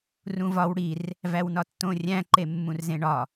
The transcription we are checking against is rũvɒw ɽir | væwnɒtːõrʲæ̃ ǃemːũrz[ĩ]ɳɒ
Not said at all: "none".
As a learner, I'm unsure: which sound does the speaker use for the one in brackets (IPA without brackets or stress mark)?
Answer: ẽ